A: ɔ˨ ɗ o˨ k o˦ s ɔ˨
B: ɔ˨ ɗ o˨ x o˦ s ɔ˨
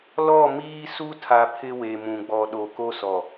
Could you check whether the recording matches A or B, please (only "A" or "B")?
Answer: A